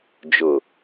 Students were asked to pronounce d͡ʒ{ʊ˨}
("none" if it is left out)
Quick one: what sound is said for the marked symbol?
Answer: ʊ˨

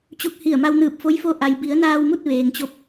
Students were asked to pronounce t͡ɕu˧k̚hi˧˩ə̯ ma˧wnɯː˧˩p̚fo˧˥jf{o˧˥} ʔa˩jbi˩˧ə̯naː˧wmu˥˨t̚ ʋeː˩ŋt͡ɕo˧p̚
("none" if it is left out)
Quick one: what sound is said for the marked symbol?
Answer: o˧˥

